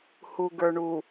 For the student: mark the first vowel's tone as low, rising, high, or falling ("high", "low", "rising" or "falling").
low